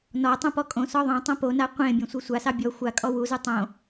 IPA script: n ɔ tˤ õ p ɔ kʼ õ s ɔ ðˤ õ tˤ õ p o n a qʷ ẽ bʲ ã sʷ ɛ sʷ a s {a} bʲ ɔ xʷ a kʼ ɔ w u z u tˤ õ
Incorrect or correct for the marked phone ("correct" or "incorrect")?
incorrect